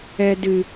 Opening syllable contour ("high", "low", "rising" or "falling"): low